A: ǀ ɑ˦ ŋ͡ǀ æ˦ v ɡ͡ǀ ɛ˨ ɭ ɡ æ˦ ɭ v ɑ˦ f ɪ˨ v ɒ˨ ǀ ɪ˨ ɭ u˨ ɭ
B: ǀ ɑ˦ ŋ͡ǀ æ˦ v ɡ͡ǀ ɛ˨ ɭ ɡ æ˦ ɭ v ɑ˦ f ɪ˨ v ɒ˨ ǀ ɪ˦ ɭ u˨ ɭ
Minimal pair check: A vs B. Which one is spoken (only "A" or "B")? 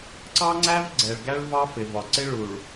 B